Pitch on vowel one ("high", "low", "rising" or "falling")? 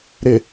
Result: low